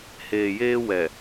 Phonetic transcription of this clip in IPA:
h eː˨ j eː˦ w ɛ˨

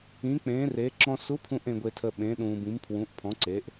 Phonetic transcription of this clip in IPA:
ĩ˧˥ k͡p ẽː˧˥ r e˧˥ ǁ ɔ̃˧ s u˧˥ pʰ ũ˧ ʔ ẽ˧ ɡʷ e˧ tʰ ə˧ ɓ ẽ˧˥ ɗ ũː˧ b ĩ˧˥ m pʰ w ũ˧˥ ʔ pʰ ɔ̃˧˥ ǀ e˧˥ ʔ

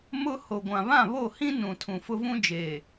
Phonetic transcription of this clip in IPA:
m ʊ˦ h o˨ ɡʷ ã˨ β ã˦˨ β o˦˨ h ĩ˦ n ũ˨ tʰ ũ˨ f ʊ˦ v ũ˦ d͡ʒ eː˨

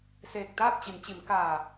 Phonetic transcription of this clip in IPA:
s eː˧˩ k̚ t̪ aː˥˨ p̚ t͡ɕ i˩˧ n t͡ɕ i˩˧ m k aː˧˩

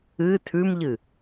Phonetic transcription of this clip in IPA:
ɨ tʰ ʉ m ʎ ɨ

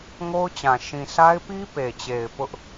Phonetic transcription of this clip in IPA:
ŋ o˦ ʊ̯ t͡ɕ ã˨ ʃ ĩ˨ s a˦ ɪ̯ p i˦ p e˨ t͡ɕ e˨ ɪ̯ p ʊ˦ ʔ

